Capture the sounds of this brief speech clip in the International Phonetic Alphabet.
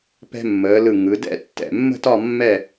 pɛ̤˧mːəː˩˧lɯ˧˩ ŋɯ˩˧dɛ̰˥˧ tːɛ̰˧˩mːə̤˥˧tɒ˥˧ mːɛ˥˧

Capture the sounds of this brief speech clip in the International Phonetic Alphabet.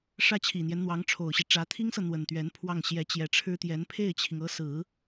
ʂä˥t͡ɕʰi˨˩n̪jɛ˦nn̪wɑ˧˥ŋ ʈ͡ʂʰo˨˩ʊ̯ɕi˦ʈ͡ʂä˧˥ t̪ʰi˥ŋsɤ˨ n̪wə˨˩nt̪ɥɛ˧˥npʰwɑ˥˩ŋ ɕjɛ˧˥t͡ɕjɛ˧˥ʈ͡ʂʰɻ̩˥t̪jɛ˧˥n pʰe˥˩ɪ̯t͡ɕʰi˩ŋɤ˧˥sɹ̩˨˩˦

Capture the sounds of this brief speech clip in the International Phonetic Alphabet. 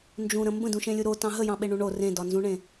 nd͡ʒũɾə̃ mbə̃dũʃẽlʲu ɾotɑ̃ ɦəjɑ̃ɓeɳũ ɳo rẽdɒnzũɳẽ

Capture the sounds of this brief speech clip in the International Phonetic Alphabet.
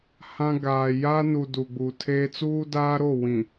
hã˦ ɡaː˨ja˦nu˨ du˨ɡ͡bu˨tʰeː˦ t͡suː˦daː˦ɾo˦˨wĩ˨

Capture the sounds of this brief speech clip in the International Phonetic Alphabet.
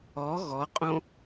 ɔ ɣɔqʼõ

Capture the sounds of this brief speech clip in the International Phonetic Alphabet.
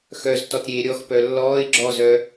xœztɔtɾʲeː ɾʲɔxpœ lːɔːɪ̯ ɡ͡ǁɔzœ

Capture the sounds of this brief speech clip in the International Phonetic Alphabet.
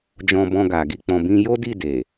d͡ʒɔ̃˧bɔ̃˧ ɡa˨ ɡi˧ k͡pɔ̃˧bĩ˦ jo˦di˦˨ de˨

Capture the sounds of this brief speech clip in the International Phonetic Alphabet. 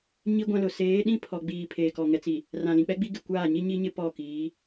ɲi˦ɡʷã˦lʊ˨ seː˨˦ɗĩ˦ pʰɔ˨ɡ͡biː˨ pʰeː˨kɔ˨ŋɛ˨t͡si˨ | rã˨lĩ˨k͡pɛ˦ɡ͡bi˦ ɡɪ˨kʷaː˦˨ ɲi˦ɲi˦ɲɪ˦ pɔ˦˨kiː˨˦

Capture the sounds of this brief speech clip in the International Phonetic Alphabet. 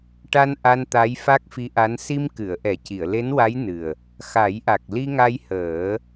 ʈa˧n ʔa˧nt̪a˧˥j fa˦˥k̚fi˧˥ʔa˧˥n si˧mkɨ˨˩˨ə̯ ʔɛ˨˩˦ci˨˩˨ə̯ le˧˥nwa˧˥j nɨ˨˩ə̯ | xa˨˩˦jʔa˨˩k̚ li˧ŋa˧j həː˨˩˦

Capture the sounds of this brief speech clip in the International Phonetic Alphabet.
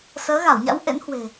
səː˨˦ɣa˧˩wɲa̰˧˥w ʔḛ˧˥nhwe̤˨˩

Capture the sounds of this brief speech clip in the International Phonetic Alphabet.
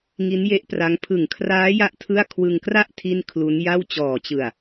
ŋi˦˥nje˦˥ʔpra˦˥ŋ pʰɯ˨˩ŋkʰraː˦˥ja˦˥ʔ tʰɯ˥˩a̯ kʰwɯ˧ŋkra˥˩ʔ tʰi˥˩n kʰlu˦˥nja˥˩w t͡ɕɔː˨˩t͡ɕɯ˨˩a̯

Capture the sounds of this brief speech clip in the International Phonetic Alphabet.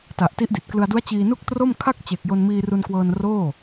ta˨˩ʔti˦˥ʔdi˨˩t̚klɯ˧a̯ du˦˥a̯t͡ɕiː˧nu˥˩k̚tro˥˩m kʰa˥˩k̚ t͡ɕe˨˩k̚ jo˧nmiː˧ru˧nkwɤː˧n roː˥˩

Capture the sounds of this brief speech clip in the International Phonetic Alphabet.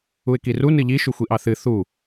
uɪ̯kiru nɨʎi ʃuxʷiʔɑθɨ θu

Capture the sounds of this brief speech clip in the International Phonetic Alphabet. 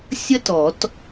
sʲə˥tɔ˨˩˦t

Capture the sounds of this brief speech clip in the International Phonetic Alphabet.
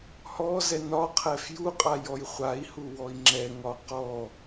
hɔ zɛnɒqʰɛf juqʼa jɔjχʷai̯hu wɔi̯ŋ͡ǁɛŋɒ qɔ

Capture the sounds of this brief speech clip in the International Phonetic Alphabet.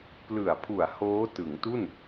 plɯ˨˩a̯pʰu˨˩a̯ hoː˦˥tɯ˩˦ŋtu˥˩n

